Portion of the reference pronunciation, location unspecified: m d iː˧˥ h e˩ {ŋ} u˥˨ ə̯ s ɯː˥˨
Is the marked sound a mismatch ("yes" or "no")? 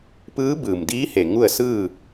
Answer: no